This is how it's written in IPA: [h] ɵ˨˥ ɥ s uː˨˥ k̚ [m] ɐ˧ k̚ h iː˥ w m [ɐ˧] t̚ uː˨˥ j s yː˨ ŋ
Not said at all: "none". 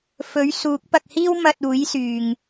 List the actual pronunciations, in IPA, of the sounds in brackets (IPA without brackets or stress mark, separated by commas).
f, p, ɐ˧